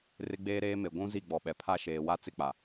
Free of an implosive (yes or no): no